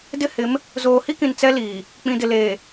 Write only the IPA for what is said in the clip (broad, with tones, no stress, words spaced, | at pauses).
dɪ˦hɪ˨˦m | zoː˨hi˦kĩ˨n t͡sɛ˦liː˨ | k͡pĩ˨dɪ˨ leː˨